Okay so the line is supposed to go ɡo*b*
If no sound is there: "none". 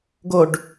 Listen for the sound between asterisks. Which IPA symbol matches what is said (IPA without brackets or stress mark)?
ɖ